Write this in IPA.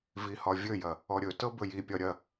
v i h ɒ vʲ ɵ j ɐ | ɔ ɾʲ ɵ t ɤ b ɵ j i pʲ ɒ ɾʲ ɐ

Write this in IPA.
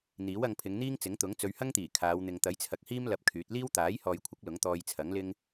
n̪ iː˨˥ w ɐ˧ ŋ pʰ ɪ˨˧ ŋ n̪ iː˥ ŋ t͡s ɪ˨˥ ŋ t̪ ʊ˨˥ ŋ t͡s ɵ˨˧ ɥ h ɐ˥ ŋ t̪ iː˨˩ kʰ aː˨˧ w n̪ ɪ˨ ŋ t̪ ɐ˨˥ j t͡sʰ ɐ˨ k̚ h iː˥ m l ɐ˧ p̚ kʰ yː˨˥ t̚ l iː˥ w t̪ aː˨˥ j h ɔː˨ j kʷʰ ɪ˨˥ k̚ l ʊ˨˥ ŋ t̪ ɔː˧ j t͡sʰ ɐ˨˥ ŋ l ɪ˥ ŋ

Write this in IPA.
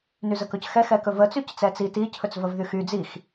n y z ə k ɵ c x ɛ x ɛ k ɵ v ə t͡s y c t͡s ɛ t͡s i t i cʰ ɵ t͡s v ə v ð y x y d͡z i x

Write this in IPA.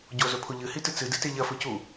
ɟ o z ɵ pʰ o ʎ ɨ h i t ɨ t͡s ɨ d ɨ t e ʎ ɐ f ɵ c u

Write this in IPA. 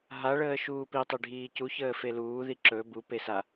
ɦ a ɭ əː ʃ uː p i tˤ e ɖʱ iː c u ç əː f e l uː ð i ǁ ɵ b u p e s a

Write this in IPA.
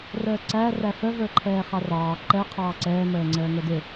r əː ǀ æ r æ f ə v ə˞ ǃʰ ɛː χ ɑ r ɑː ǃ ɛ qʰ ɑː ǀ ɛː m əː ŋ͡ǀ əː ŋ ə˞ d ɪ

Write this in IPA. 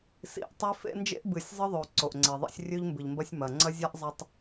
s ḭ˨ ʔ tˤ i˦ f ḛ˦ n d͡ʒ ḛ˦ ʔ b ɨ˨ sʲ zˤ ɨ˦ ðˤ o˨ ǀ o˨ ʔ ŋ͡ǀ e˨ ðˤ ḭ˦ sʲ rʲ ʉ˦ ʎ m b ɨ˨ ʎ m b ɐ˦ sʲ m ɐ˨ ŋ͡ǀ ɐ˦ zʲ a˦ ʔ zˤ ɐ˨ tˤ

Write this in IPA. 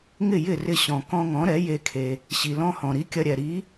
ŋ ɪ˥˩ j ɪ˥˩ r ɪ˧ ɕ ɔ̃˩ k ɔ̃˧ ŋ ɔ̃˩˥ ɾ ɛ˩˥ j e˧ kʰ e˩ | ɕ i˩ l ɔ̃˧ h ɔ̃˩ ɾ i˩˥ kʲ ɐ˧ ɾʲ ɛ˩ ɾ i˩˥

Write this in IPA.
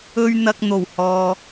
ɵ˥ ɥ n̪ ɐ˧ k̚ n̪ o˨˩ w h ɔː˨

